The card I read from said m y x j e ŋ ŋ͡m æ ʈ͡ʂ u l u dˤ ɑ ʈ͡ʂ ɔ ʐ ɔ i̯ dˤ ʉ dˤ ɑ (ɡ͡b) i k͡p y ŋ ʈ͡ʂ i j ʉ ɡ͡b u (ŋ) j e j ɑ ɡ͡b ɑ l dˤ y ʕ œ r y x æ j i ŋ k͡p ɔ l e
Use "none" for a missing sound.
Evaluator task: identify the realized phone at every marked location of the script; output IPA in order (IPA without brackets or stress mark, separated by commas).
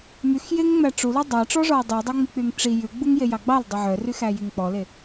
ŋ͡m, ŋ